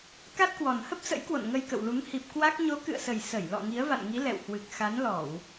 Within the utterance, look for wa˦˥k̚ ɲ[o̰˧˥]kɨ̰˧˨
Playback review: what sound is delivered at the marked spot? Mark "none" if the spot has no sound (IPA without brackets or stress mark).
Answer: o˨˦